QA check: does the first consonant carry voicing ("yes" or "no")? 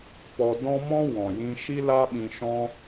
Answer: no